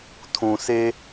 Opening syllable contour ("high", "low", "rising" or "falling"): low